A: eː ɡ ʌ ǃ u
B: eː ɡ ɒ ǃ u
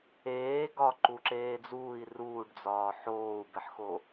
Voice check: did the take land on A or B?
B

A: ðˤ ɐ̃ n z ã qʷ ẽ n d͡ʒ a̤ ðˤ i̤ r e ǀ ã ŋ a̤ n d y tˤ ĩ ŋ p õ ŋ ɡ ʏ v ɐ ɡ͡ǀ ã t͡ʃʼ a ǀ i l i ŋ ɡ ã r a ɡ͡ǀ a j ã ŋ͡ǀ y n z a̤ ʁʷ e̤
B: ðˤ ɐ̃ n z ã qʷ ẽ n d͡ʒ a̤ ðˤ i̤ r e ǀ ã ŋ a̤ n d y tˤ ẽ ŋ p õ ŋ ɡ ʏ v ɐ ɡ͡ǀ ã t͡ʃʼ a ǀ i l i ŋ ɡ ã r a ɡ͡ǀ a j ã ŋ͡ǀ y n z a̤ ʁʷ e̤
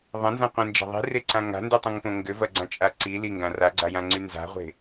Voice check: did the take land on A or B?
A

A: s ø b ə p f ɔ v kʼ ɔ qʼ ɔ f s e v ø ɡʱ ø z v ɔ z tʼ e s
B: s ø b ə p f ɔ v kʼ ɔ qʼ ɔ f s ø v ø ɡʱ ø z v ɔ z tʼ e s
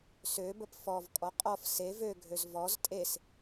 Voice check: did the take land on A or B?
A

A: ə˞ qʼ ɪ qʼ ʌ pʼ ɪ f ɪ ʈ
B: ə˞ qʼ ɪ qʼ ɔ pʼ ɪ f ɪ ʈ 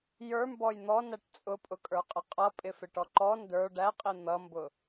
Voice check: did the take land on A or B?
A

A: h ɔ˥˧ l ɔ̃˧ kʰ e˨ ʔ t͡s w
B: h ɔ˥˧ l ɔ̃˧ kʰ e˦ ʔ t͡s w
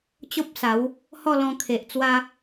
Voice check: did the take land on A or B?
A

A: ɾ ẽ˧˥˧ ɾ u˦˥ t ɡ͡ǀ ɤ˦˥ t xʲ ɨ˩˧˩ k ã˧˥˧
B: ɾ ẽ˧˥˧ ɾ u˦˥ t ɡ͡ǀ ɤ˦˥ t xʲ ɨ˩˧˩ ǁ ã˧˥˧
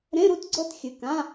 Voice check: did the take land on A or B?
A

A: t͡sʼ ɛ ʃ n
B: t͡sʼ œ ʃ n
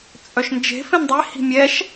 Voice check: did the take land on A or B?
B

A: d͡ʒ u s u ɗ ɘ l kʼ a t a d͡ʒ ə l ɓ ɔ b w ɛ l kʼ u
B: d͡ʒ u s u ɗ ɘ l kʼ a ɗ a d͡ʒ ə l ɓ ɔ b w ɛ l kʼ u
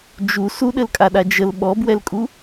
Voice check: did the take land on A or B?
B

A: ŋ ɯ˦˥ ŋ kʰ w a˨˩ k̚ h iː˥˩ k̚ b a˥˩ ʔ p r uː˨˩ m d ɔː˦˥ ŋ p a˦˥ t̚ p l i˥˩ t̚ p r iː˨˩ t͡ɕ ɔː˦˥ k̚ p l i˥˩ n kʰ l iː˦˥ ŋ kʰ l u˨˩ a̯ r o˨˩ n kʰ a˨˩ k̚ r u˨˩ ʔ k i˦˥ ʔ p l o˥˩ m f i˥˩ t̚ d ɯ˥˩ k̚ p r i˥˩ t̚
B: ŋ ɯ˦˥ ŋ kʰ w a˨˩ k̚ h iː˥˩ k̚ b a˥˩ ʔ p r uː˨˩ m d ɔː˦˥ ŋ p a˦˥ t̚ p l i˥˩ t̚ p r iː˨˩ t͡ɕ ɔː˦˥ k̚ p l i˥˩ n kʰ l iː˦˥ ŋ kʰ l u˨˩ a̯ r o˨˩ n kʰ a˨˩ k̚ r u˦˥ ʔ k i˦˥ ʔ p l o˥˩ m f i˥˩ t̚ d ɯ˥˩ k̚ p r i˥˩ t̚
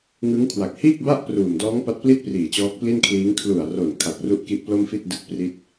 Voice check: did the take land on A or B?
B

